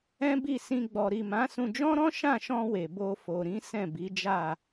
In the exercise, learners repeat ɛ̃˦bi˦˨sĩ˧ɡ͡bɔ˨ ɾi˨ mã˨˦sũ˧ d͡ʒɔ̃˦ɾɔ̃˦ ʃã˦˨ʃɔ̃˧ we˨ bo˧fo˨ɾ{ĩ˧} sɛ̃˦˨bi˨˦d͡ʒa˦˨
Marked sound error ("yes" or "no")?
yes